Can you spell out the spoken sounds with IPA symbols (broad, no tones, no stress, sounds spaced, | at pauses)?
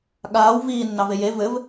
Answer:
ɠ aː w v iː nː ɑ v e j e v ɘ v